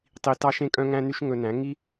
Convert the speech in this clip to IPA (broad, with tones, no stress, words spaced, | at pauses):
tˤi˨ tɑ˧ʃẽ˧kʼœ̃˧ŋæ̃˧ ny˦ʃŋɵ˧næ̃˨˦ ŋi˦